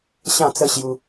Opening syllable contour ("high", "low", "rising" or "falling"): falling